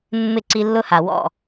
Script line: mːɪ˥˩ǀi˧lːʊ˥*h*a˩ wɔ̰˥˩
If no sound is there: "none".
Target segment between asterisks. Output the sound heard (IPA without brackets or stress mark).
h